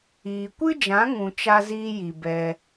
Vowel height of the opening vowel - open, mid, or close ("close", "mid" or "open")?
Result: close